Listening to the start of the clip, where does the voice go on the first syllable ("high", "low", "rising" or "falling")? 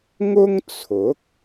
high